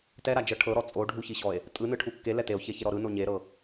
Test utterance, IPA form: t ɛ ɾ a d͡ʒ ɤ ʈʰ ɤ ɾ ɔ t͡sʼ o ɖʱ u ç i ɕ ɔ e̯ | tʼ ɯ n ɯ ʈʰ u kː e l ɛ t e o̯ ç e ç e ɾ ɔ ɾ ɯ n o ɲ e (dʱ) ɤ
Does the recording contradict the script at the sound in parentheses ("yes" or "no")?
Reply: yes